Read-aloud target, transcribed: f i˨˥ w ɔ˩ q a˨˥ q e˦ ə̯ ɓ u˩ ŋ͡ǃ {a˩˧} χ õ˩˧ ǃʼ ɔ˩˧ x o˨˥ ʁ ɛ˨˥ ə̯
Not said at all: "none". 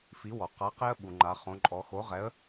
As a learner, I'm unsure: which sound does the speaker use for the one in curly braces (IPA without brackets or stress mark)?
a˩˧